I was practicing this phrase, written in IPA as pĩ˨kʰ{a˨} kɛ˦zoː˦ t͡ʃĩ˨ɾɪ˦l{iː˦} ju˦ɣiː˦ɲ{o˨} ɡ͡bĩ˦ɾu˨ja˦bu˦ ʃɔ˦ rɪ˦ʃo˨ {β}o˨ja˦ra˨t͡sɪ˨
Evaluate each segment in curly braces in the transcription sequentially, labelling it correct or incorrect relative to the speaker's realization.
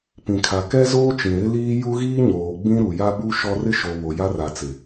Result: correct, correct, incorrect: oː˨, correct

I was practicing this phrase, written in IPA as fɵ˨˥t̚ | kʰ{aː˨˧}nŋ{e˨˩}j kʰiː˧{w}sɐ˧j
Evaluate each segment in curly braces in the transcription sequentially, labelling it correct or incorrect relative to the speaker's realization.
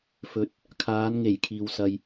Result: correct, correct, correct

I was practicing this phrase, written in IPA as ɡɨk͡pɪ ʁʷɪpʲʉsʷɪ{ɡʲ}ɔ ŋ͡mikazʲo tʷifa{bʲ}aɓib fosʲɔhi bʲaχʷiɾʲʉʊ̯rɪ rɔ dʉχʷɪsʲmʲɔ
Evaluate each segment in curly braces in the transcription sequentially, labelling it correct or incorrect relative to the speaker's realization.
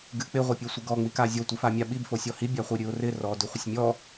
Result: incorrect: ɡ, incorrect: mʲ

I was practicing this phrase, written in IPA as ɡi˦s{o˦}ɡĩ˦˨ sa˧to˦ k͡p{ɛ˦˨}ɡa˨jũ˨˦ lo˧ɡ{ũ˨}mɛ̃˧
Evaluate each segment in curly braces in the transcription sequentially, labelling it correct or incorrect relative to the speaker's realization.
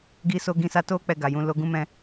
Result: correct, correct, incorrect: ũ˦

